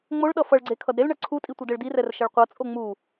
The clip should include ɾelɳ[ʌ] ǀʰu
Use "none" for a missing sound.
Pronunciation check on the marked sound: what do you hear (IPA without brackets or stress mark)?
ʌ